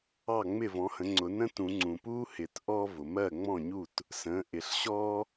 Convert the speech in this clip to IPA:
ɑ˥˩ ŋ͡mɪ˥˩vɔ̃˩˥hə̃˩˥ ŋ͡ǀʊ˨˩˦nə̃˥tũ˨˩˦ ŋ͡ǀũ˩puː˥ hɪ˨˩˦t ʔɔ˥ vʊ˩mɜ˥˩ŋ͡mɔ̃˥˩ɲu˥˩t | sə̃ː˩˥ʔɪ˨˩˦ɬɕɔː˥

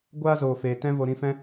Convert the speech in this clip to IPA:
ɡʷaː˦zoː˨feː˨ tɛ̃˧ vo˨ɾĩ˧fɛ̃˦

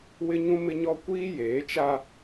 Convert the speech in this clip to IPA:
wɪ˦ɲũ˦mɪ˦ɲɔ˦ kʷiː˦jeː˨˦t͡ʃa˦

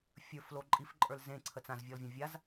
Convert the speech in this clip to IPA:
fʲə˞flo ǃʼifǃʼə˞l zẽǀʰə t͡sãzvʲɔlvʲã vʲaz

